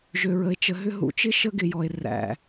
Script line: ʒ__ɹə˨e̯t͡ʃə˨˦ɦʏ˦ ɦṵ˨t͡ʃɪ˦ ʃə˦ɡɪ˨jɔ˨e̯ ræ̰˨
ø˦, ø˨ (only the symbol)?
ø˨